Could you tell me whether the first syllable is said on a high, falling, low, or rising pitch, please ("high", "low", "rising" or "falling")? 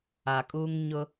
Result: low